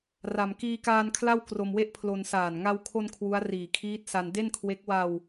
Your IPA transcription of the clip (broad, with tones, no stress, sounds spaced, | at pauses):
r a˧ m k iː˧ k aː˧ n kʰ l a˥˩ w k r o˧ m w e˥˩ ʔ pʰ l o˧ n s aː˨˩ n ŋ a˧ w kʰ o˧ n kʰ w u˦˥ a̯ r iː˨˩ kʰ iː˦˥ t̚ s a˧ n d e˥˩ n kʰ w e˦˥ k̚ w a˧ w